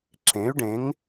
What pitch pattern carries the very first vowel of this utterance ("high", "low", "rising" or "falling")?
rising